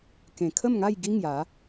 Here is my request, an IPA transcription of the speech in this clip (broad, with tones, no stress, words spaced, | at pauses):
kẽ˨˩kʰə˥˧mŋa˥˧j ɡi˦ŋja˨˦